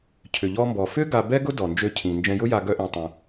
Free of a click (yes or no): yes